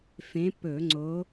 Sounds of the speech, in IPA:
f ẽ˨˦ p ɵ˧˩˧ ŋ͡ǀ o˨˦

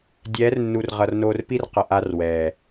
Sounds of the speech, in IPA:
dʲ ɛː˨˦ r nː u˨ r ʁ ʌ˨ r n oː˧ r p i˦ r q ʌ˨ ʔ a˧ r w ɛː˨

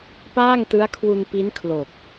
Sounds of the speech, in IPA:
p aː˥˩ ŋ t ɯ˦˥ a̯ kʰ w u˧ n p i˦˥ n kʰ l o˨˩ k̚

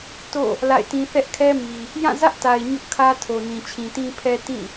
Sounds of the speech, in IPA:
t o̰˦˨ | l a̰˦˨ ɪ̯ t ĩ˦ θ ɛ˦ ʔ kʰ ɛ˦ m i˨ | j ã˦˨ z ä˦ ʔ t a˨ ɪ̯ ɲ ʊ˦ ʔ kʰ ä˦ tʰ o˨ n ĩ˨ t͡ɕʰ ĩ˨ t ĩ˦ pʰ ɛ˦ t ĩ˦˨

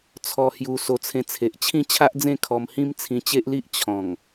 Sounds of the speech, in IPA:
t͡sʰ ɔ˧ h j u˧ s o˧ t͡sʰ ẽ˧ t͡sʰ e˨ ʔ t͡ɕʰ ĩ˥˧ t͡ɕʰ a˦ ʔ d͡z ẽ˥˧ kʰ ɔ˧ m h ĩ˦ m t͡sʰ ĩ˧ t͡ɕ e˦ ʔ l i˦ ʔ t͡ɕʰ ɔ̃˨˩ ŋ

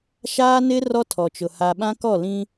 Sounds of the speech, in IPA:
ʃ aː˦ n ɪ˦ r ɔ˦ tʰ ɔ˨ t͡ʃ ʊ˨ h a˨ ɓ ã˦ k ɔ˦˨ l ĩ˦

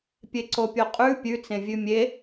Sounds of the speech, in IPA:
pʲ e ǀ o pʲ o qʼ ʉ pʲ ʉ t͡s ẽ vʲ ʉ mʲ e

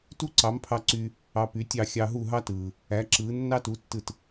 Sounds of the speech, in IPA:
t u˥ ǀ ɑ˩˥ m pʰ ɑ˧ ǀ y˧ | ɑ˧ p y˩˥ tʲ ɑ˥˩ xʲ ɑ˧ ɦ u˥˩ ɦ ɑ˥ t ɯː˩ | æ˩˥ ǁ ɯː˩˥ nː ɑ˥ t u˩˥ tː ɯ˥˩ t

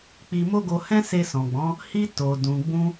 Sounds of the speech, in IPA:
k͡p i˧ m o˦ ɡ o˧ h ɛ̃˦ s e˧ s ɔ̃˨ ɡ͡b ɔ̃˨˦ | h i˧ t o˨ d ũ˨ ɡ͡b ũ˧

